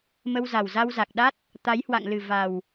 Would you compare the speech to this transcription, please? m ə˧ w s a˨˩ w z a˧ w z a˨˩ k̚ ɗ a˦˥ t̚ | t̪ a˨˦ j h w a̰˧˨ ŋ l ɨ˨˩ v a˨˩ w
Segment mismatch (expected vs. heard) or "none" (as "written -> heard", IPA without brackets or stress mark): s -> z